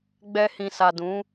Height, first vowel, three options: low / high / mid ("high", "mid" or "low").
mid